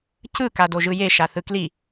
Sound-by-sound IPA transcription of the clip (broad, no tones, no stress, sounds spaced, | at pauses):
c ɯ k a d o ʒ ɯ j e ʃ a θ ɯ k l i